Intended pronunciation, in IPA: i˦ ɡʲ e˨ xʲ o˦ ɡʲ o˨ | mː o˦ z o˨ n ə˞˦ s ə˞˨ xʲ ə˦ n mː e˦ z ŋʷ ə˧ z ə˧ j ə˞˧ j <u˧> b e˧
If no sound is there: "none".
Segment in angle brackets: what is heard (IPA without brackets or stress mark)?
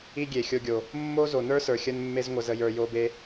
o˧